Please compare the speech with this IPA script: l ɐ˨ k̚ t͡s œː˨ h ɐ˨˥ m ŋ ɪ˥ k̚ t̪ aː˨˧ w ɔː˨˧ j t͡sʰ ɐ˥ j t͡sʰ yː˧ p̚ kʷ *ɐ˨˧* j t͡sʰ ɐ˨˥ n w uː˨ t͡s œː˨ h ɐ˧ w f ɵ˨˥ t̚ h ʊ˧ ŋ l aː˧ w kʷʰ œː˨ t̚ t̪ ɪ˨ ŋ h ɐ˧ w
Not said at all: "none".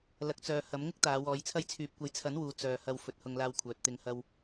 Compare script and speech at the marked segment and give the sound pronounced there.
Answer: ɐ˧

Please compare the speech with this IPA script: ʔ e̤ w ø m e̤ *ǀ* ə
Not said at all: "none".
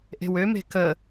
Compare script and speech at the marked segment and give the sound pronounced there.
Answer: k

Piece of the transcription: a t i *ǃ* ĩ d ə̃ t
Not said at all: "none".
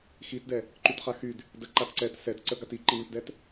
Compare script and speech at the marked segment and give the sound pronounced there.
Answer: ǃ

